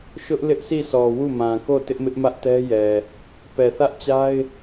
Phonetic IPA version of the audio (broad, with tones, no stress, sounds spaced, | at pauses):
ʃ ʊ˦ ʔ l ɪ˦ ʔ sʰ i˦˨ sʰ ɔ˨ w u˦˨ m ã˨ k o˦˨ t ɪ˦ ʔ m ɪ˦ ʔ m ä˦ ʔ t ɛ˦ j ɛ˨ | p ɛ˨ θ ä˦ ʔ t͡ɕ a˦ ɪ̯